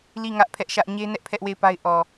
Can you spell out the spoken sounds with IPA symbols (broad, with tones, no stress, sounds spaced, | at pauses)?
l i˦˨ ŋ ä˦ ʔ pʰ ɛ˦ ʔ ʃ ä˦ ʔ ɲ e˦ n ɛ˦ ʔ pʰ ɛ˦ ʔ w e˦˨ ɪ̯ p a˦ ɪ̯ ʔ ɔ˨